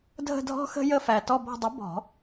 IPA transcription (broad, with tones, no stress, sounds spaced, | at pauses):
dʱ ə̤˦˨ dʱ ɔ̤˦ x ə̤˦ j ə˦˨ f æ˨˩ t ɔ˦˨ b ɔ̤˦˨ dˤ ə˨˥ b ɔ̤˨˩˦